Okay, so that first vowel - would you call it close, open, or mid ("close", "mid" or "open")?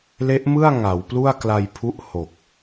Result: mid